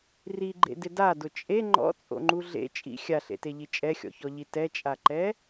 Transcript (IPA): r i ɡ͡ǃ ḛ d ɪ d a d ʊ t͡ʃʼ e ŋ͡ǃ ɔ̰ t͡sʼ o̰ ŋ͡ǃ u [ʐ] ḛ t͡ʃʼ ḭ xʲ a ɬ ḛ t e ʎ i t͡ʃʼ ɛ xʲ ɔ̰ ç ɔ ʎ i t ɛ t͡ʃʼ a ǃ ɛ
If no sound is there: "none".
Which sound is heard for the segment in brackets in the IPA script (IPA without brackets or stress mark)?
ɮ